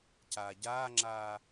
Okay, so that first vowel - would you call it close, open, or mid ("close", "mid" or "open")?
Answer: open